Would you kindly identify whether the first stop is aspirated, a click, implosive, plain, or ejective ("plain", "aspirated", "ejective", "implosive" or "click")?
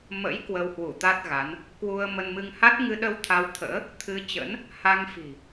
plain